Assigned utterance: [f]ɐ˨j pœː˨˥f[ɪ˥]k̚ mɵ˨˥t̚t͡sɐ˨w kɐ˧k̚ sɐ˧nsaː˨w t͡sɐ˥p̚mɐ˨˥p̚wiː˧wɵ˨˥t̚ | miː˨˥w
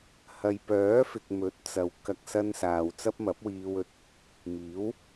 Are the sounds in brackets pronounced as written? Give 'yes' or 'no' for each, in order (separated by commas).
no, no